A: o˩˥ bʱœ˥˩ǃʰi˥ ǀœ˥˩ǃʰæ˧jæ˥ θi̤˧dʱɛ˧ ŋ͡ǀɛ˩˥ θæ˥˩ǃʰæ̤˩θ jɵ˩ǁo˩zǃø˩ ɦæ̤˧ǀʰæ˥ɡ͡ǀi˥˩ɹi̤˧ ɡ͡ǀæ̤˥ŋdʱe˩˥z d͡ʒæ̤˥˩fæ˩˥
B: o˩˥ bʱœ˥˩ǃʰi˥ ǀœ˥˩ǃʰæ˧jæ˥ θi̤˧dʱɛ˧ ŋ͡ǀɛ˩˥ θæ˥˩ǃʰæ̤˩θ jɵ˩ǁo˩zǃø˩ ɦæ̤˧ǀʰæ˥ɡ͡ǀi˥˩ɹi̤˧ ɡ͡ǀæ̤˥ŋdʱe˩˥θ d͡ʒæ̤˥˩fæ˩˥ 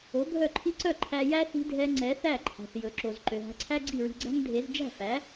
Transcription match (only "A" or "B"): A